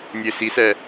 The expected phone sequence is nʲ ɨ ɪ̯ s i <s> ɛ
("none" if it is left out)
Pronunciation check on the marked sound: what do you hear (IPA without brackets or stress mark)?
s